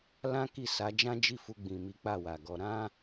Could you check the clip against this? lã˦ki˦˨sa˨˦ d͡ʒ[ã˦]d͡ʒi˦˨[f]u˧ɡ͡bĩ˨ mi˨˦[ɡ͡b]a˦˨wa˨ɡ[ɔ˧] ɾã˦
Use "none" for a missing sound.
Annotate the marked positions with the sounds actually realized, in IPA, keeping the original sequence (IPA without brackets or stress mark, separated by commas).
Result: ã˦, f, k͡p, ɔ˧